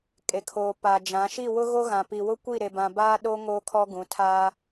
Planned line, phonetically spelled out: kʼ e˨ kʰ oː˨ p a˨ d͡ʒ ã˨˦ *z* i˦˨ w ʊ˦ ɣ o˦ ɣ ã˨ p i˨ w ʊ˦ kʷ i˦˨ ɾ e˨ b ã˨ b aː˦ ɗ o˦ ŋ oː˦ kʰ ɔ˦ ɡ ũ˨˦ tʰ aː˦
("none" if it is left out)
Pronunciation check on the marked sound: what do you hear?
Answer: ʃ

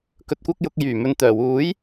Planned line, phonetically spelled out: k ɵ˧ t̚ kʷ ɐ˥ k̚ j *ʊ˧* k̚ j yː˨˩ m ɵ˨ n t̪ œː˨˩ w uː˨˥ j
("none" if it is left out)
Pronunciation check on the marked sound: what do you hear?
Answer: ʊ˧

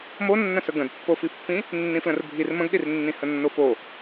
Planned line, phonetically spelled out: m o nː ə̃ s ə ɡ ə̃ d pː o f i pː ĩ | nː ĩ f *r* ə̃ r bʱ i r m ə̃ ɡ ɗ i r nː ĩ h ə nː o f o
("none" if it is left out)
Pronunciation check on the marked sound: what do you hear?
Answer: l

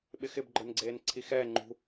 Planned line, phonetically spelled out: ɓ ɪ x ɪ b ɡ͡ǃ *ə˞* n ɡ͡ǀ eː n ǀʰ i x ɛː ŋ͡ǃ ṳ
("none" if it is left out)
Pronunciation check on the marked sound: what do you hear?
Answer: ə˞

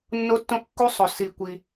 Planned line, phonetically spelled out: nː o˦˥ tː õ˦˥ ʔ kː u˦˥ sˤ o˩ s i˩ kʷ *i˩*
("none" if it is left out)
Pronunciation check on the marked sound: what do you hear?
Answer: i˩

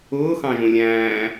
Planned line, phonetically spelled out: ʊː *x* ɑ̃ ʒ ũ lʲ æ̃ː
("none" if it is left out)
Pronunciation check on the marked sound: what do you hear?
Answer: x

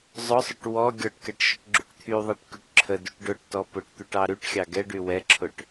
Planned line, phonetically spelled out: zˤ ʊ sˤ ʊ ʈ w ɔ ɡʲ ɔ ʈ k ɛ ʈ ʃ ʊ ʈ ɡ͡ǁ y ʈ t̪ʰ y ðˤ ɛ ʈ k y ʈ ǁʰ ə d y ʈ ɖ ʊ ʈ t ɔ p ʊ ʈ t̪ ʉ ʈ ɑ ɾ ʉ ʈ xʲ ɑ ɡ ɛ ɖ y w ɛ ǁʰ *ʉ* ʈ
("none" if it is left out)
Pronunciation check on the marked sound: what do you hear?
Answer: ʊ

